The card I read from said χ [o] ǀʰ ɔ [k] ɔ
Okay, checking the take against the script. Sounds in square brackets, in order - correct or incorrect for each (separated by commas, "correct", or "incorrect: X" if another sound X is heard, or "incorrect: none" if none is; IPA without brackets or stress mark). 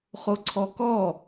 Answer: correct, correct